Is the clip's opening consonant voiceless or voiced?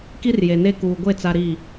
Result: voiceless